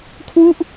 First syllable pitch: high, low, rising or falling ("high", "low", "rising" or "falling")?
falling